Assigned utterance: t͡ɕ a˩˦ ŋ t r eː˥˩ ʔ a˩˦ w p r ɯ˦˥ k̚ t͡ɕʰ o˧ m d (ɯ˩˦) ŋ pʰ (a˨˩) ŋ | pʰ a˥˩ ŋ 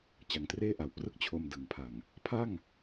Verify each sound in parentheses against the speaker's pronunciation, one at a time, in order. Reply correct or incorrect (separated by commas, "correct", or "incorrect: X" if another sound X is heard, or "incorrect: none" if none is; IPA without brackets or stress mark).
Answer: correct, correct